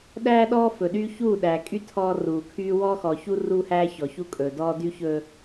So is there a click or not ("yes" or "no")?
no